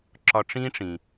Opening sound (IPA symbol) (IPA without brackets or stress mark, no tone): ǁ